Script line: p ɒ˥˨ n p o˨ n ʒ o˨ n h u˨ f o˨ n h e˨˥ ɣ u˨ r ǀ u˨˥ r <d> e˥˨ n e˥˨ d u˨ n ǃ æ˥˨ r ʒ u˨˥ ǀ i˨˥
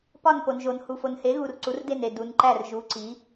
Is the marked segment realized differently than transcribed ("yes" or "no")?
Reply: no